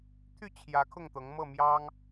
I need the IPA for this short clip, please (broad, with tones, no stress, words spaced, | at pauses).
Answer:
t̪ʰy˥˨t͡ɕʰjä˨˦ kʰʊ˥˨ŋt̪ɤ˨˦ŋ mɤ˥˨mjɑ˦ŋ